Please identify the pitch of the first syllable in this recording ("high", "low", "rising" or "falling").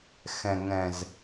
low